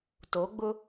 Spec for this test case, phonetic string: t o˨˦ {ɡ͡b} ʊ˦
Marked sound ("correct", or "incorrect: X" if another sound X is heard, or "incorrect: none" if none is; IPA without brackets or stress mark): correct